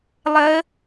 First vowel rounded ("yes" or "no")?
no